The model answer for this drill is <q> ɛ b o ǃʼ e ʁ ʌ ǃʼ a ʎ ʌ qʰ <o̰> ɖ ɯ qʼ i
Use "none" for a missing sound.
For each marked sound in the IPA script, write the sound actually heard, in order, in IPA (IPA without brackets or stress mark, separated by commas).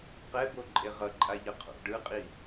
q, o̰